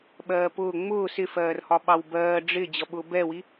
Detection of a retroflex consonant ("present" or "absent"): present